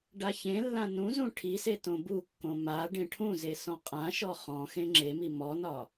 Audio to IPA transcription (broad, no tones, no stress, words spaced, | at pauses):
ɖaçẽlːã nũzũ ʈʰise tõbukːõ ma ɖẽʈʰũze sɔ̃qʼãʃɔ χɔ̃xẽ ŋ͡ǁemi mɔnɒ